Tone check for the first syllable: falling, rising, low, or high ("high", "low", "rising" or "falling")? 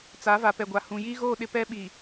rising